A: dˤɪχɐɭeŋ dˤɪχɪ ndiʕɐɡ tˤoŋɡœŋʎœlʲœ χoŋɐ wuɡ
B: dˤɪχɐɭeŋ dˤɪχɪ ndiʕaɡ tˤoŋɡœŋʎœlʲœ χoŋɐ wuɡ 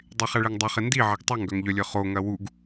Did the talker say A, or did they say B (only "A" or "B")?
A